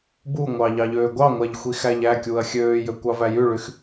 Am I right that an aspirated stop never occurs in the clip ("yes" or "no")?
yes